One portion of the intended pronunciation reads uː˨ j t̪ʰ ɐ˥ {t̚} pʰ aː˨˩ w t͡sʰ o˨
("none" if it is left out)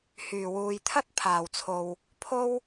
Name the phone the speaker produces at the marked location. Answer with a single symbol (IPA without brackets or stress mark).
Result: t̚